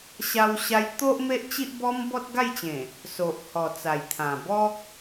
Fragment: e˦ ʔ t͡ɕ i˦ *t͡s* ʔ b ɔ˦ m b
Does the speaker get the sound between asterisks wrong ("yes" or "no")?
yes